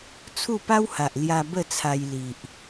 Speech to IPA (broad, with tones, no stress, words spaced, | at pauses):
t͡sʰu˥˧pa˦wha˨ʔ lja˧ bə˥˧t͡sʰa˧jli˨ʔ